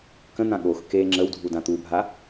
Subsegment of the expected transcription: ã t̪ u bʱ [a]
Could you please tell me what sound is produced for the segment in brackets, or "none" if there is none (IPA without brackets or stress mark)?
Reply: a